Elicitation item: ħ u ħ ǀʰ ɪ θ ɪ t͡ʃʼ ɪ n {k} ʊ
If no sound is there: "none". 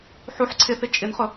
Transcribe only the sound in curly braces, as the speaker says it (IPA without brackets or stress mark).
χ